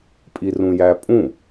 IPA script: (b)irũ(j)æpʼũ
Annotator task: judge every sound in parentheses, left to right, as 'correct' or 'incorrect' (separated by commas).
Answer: incorrect, correct